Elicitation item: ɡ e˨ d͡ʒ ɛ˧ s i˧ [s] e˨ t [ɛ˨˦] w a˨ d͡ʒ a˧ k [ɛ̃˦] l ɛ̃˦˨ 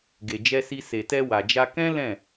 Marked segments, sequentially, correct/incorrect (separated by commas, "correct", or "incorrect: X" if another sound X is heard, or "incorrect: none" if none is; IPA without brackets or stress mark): correct, incorrect: ɛ˧, correct